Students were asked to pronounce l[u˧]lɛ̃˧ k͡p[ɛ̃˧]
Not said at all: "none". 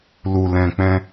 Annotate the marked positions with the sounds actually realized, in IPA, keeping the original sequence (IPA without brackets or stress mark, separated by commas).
u˧, ɛ̃˧